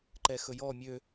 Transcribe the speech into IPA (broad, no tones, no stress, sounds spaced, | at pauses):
ǃ ɛ x ɵ j ɔ mʲ ø